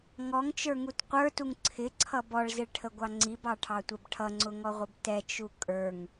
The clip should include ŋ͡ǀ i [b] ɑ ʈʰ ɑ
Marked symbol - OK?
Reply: yes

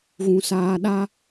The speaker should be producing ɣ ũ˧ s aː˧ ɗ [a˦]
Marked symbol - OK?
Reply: yes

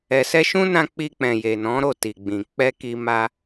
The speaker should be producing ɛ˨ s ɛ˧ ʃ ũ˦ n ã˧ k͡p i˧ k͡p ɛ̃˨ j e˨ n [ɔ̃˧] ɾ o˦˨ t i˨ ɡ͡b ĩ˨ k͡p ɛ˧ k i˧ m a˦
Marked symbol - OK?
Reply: no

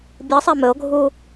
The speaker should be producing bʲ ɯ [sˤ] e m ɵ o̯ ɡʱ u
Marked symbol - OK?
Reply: yes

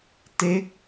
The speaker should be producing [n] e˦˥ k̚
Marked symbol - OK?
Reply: no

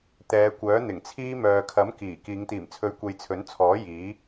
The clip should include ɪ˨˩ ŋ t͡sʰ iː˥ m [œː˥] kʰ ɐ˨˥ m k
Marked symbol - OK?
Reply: no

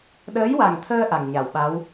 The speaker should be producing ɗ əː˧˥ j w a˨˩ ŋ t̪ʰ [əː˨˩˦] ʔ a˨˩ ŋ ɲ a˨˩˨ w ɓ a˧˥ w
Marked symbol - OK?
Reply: no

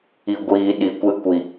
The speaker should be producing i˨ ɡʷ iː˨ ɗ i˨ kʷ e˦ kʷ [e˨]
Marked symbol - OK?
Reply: no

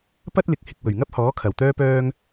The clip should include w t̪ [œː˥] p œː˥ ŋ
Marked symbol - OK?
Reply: yes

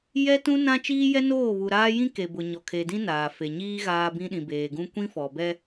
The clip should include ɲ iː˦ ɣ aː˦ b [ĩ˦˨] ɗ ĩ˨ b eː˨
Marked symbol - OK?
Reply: no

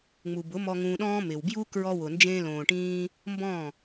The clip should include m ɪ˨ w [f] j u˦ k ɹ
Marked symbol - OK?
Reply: no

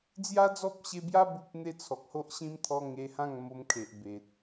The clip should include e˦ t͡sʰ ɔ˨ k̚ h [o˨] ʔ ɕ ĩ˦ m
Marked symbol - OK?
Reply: no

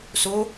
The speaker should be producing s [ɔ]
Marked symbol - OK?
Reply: no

